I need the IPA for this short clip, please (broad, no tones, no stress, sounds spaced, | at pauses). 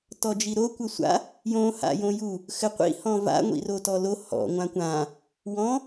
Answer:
t ɔ d͡ʒ i ɾ o kʷ ɘ sʷ a̰ | j õ h a̰ j õ j u | x ɘ qʷ ḭ h ɔ̃ v a̰ ŋʷ ḭ r o t ɔ l o h ɔ̰ ŋʷ ã kʷ ã | w ɔ̃